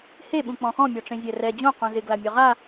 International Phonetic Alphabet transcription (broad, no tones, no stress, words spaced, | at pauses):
he ɓũk͡pɔ̃xɔ̃ mʲɔʈ͡ʂẽzʲɛrɛ d͡ʑõ qũzɪ ɡlamʲɔʁa